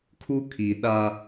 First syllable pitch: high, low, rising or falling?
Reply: high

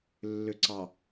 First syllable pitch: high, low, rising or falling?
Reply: low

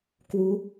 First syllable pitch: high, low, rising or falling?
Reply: rising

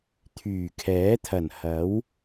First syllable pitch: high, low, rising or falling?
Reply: low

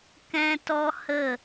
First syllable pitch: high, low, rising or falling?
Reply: high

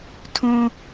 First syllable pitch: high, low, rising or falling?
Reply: high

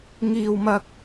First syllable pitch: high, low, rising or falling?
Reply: high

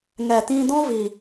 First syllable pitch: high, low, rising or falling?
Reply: low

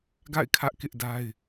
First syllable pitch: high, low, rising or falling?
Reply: falling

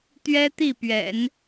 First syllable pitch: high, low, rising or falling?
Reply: high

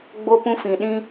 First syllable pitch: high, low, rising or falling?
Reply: high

